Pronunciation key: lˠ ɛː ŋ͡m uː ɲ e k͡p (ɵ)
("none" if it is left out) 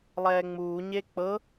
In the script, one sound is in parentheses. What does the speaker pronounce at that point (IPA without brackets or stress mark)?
ɤ